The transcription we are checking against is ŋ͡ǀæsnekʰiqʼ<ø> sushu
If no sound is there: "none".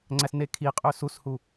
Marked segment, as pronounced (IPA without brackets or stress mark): ø